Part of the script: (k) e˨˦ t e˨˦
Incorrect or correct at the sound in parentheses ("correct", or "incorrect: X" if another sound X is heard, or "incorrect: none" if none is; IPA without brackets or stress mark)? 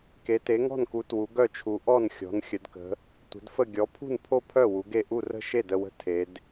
correct